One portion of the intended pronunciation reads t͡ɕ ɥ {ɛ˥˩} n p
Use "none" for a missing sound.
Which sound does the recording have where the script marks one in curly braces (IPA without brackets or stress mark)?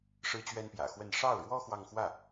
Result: ɛ˥